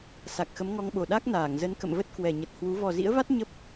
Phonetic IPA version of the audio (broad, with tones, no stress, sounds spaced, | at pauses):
s a˨˩ k̚ x ə˨˦ m ŋ ɔ˧ ŋ ɓ o˨˩ ɗ a˦˥ k̚ n aː˧˩ ŋ z ə˨˦ n k ə̰˧˨ m v ə˦˥ t̚ k w ɛ˨˩ ɲ ə˨˩ t̚ h w u˨˦ v ɔ˨˩ z ḭ˧˥ ə̯ v a˦˥ t̚ ɲ ə˦˥ p̚